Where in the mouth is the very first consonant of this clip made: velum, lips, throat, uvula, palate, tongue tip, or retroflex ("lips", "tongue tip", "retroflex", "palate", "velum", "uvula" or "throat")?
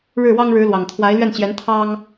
retroflex